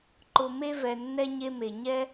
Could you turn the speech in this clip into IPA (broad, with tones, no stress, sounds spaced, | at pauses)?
ǃ ʊ˨ m e˧ v ɛ˨ nː ɛ˧ ɲ e˧ m e˨ ɲ ɛ˧